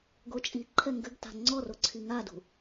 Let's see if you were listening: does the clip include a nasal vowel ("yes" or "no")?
no